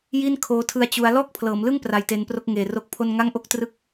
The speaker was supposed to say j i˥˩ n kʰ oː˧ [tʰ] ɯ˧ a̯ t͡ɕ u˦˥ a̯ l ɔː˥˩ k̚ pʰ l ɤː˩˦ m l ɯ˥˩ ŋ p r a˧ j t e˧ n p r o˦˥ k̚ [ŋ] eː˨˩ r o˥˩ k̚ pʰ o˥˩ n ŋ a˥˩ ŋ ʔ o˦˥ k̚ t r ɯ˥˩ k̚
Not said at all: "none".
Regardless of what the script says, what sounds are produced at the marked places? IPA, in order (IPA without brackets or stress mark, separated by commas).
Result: tʰ, ŋ